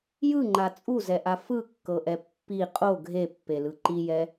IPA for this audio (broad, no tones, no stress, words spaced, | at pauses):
jɯŋ͡ǃa t͡sʼuzɛʔa fɯkːɤʔɛ pːi qʼo ɡʱepːelɯ ǃijɛ